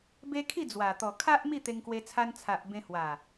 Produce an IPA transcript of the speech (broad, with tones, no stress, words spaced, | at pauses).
be˦ kʰi˥˧d͡zwa˨˩t̪ɔ˨˩ kʰa˦ʔ mi˥˧t̪e˧ŋkwe˧t͡sʰa˧n t͡sʰa˨ʔbẽ˧ hwa˨˩